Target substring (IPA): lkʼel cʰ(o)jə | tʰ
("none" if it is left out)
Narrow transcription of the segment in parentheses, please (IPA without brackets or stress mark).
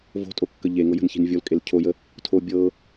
o